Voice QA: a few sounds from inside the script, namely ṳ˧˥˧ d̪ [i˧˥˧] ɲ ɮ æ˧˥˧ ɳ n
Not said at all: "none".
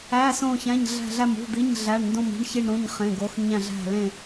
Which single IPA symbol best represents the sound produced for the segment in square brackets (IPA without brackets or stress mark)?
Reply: i˧˥˧